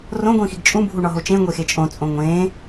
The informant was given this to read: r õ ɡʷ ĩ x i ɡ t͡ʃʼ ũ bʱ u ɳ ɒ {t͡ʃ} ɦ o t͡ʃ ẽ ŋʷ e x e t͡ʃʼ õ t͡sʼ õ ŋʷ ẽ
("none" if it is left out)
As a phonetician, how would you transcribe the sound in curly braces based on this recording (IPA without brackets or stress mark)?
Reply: none